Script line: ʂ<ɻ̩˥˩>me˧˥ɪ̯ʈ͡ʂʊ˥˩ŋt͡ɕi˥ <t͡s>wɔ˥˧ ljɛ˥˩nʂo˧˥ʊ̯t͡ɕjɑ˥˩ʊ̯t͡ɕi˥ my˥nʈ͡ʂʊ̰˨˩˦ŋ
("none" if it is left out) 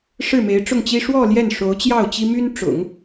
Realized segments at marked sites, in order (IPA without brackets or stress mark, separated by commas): ɻ̩˥˩, ʂ